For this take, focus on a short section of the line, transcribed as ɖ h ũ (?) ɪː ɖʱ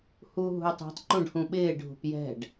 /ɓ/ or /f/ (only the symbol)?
ɓ